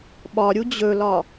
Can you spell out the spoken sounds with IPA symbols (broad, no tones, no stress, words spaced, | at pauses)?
ɓɒɾʲu d͡ʑɵlɒ